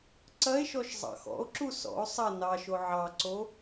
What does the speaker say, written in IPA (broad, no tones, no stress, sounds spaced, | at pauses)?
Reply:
ǀ ɐ e̯ ʃ ɔ ʃ zˤ ɑ̰ x ɔ̰ o̯ ǁ u s ɔ̰ o̯ sˤ ɐ n ɑ ʃ o ʕ ɑ ǀ o